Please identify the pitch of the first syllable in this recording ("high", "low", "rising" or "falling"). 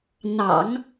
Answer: low